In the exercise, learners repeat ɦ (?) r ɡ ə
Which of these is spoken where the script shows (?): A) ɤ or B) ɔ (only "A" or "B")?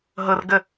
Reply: A